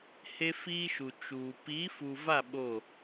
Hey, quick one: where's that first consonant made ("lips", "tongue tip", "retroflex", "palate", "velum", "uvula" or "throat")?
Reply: throat